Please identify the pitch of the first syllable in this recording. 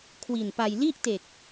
low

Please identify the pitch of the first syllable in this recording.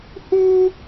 high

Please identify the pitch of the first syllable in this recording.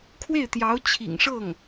falling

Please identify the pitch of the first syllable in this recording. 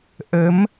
rising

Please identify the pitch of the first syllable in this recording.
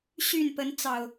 falling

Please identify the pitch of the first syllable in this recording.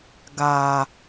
low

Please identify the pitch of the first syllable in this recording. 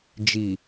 low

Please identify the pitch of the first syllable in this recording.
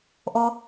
low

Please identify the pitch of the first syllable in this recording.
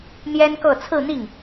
high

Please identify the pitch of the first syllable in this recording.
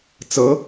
rising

